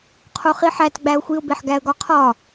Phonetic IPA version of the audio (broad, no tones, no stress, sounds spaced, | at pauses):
qʰ o χ i ħ æ t ɡ͡b æ ʊ̯ xʷ i ʊ̯ b e ħ ɡ æ ə̯ ɡ ɒ qʰ ɒ